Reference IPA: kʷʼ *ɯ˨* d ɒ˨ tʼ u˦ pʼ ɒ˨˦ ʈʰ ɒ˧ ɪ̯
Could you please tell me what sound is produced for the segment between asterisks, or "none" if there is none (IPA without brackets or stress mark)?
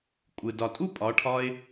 ɯ˨